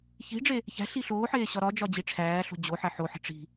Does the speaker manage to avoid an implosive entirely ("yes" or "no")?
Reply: yes